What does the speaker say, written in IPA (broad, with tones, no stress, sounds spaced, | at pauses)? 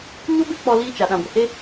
ɲ o˦ b e˦ k͡p ɔ˧ l iː˧ t͡ʃ a˨ ɗ ã˨ ɡʷ ə˨ h e˦